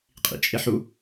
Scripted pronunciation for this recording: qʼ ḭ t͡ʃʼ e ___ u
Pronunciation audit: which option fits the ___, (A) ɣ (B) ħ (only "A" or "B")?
B